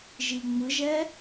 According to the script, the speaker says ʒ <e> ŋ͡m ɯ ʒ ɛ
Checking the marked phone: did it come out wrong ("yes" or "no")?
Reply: yes